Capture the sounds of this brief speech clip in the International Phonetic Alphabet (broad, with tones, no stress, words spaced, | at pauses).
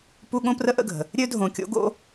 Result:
pu˦ ɠõ˦prə˦ʔə̰˦˨ɡʱə̤˨ | ɾʲø˦dʱõ˨kʲo̰˦ɡo̰˦